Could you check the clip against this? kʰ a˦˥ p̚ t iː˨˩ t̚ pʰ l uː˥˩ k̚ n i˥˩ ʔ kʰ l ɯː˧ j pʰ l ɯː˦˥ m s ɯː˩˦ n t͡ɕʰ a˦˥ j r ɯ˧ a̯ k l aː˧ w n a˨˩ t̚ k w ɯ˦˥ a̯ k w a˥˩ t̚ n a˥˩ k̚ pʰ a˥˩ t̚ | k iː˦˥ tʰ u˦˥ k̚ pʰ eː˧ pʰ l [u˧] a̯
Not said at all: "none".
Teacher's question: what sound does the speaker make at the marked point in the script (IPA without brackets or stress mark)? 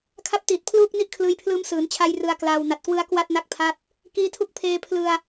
ɯ˧